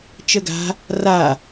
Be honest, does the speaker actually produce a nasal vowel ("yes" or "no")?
no